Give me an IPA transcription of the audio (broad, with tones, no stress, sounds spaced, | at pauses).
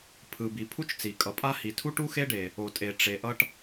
pʰ ɯ˩ b i˩ pʰ u˥ t͡ʃ t͡s i˩ kʼ ʌ˩ pʼ a˥ h i˩ tʰ u˥ ʈ u˥ x e˥ ɖ e˩ | o˩ tʼ e˩ ʈ͡ʂ e˩ ʔ ʌ˥ ʈ